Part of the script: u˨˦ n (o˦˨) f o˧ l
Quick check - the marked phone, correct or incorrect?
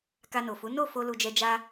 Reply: correct